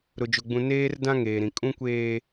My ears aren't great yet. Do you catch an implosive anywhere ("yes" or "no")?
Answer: no